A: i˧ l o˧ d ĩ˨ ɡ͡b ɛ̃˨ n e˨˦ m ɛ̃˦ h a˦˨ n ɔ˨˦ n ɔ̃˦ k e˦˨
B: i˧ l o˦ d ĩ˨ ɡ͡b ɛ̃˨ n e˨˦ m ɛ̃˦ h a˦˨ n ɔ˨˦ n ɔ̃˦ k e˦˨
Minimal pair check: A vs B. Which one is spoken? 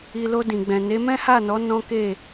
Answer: A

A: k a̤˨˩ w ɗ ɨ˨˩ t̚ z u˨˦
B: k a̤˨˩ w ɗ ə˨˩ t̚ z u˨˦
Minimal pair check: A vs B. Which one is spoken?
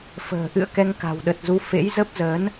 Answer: B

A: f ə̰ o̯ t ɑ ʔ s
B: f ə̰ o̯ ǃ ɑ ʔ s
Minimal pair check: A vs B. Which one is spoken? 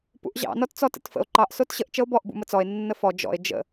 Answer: B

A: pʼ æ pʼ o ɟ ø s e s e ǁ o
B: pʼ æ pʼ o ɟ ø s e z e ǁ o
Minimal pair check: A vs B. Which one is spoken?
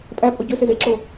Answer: B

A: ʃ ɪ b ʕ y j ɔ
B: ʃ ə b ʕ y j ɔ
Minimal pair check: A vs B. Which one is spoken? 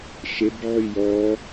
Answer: A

